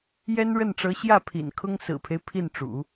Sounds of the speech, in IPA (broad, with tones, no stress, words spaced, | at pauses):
jɛ˥nɻə˥˩nʈ͡ʂɤ˧˥ ɕjä˥˩ pʰḭ˨˩nkʰʊ˥ŋ sɹ̩˨˩pʰe˦ɪ̯ pʰi˥˩nʈ͡ʂṵ˨˩˦